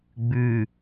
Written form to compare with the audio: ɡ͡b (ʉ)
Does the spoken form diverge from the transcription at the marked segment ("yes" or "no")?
no